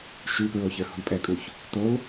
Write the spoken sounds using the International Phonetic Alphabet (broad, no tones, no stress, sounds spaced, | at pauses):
ʃ ʉ p ɹ o ç ə˞ x ṳ l pʼ ɛ kʼ u ç | t o l